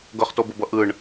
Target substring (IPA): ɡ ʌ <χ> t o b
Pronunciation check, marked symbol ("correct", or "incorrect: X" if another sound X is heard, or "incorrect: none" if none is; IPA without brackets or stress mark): correct